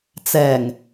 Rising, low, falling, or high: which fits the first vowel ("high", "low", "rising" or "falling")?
low